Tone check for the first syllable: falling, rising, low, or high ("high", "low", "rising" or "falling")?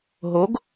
rising